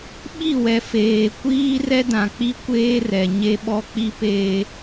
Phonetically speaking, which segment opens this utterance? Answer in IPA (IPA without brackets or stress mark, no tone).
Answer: ɓ